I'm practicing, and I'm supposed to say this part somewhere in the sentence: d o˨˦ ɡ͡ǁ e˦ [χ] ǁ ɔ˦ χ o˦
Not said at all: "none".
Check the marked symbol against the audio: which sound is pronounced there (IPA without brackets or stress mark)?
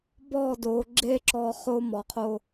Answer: none